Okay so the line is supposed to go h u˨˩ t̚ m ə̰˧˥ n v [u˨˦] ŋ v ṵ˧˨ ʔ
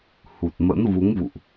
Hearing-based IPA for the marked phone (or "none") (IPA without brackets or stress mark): u˨˦